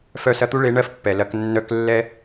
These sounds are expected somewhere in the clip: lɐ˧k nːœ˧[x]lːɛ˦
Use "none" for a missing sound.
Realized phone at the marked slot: k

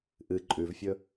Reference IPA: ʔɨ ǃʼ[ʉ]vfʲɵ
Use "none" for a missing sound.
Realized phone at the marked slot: ʉ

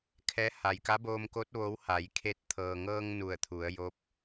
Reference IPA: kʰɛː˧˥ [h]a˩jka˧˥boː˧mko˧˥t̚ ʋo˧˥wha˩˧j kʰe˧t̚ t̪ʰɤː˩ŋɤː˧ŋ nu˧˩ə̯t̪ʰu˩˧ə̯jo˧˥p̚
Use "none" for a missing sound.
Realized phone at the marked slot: h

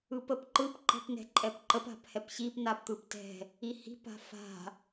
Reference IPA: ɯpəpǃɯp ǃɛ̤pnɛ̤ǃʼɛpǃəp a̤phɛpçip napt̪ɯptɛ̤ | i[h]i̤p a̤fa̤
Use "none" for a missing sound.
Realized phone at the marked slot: h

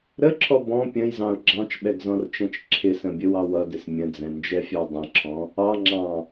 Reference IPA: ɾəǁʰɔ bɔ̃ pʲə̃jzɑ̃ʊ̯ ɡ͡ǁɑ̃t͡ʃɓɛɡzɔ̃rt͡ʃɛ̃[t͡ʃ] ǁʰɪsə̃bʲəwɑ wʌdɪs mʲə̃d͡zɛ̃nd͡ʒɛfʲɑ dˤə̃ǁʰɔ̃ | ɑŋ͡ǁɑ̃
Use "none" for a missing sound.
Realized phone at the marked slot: t͡ʃ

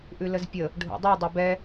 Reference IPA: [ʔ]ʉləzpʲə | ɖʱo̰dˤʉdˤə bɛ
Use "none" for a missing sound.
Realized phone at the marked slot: ʔ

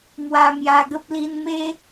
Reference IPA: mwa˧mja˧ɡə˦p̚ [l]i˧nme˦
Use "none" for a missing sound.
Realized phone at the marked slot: l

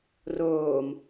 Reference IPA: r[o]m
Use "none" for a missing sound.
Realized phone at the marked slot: oː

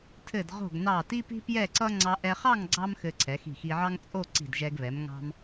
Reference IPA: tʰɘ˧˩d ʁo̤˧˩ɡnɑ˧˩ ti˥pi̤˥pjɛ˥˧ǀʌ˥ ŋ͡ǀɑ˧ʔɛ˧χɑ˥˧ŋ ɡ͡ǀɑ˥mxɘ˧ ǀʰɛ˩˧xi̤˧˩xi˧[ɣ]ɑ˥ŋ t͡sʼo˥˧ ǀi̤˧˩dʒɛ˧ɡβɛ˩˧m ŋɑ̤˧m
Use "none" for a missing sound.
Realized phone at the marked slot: ʕ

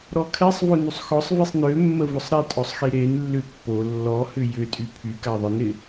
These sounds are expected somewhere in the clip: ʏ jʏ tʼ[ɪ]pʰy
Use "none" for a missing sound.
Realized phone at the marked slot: y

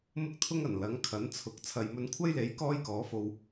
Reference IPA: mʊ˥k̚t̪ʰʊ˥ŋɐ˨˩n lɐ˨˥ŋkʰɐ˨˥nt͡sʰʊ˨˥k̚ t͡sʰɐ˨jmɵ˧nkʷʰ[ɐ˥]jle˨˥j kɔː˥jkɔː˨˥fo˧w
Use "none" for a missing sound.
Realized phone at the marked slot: ɐ˥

